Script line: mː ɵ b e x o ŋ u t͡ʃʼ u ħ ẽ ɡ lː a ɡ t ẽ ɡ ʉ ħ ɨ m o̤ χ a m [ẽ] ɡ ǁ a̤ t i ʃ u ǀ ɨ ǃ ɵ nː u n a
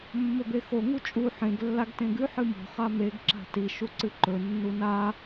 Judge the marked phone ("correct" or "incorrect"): incorrect